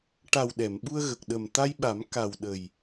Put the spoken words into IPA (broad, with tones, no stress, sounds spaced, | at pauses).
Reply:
ʈ a˨˩ w ɗ ɛ˨˩˨ m ɓ u˧ ə̯ ɣ ə˨˩ k̚ ɗ ə˨˩ m t̪ a˧ j ɓ a˨˩˦ m k a˨˩ w ɗ ə˨˩ j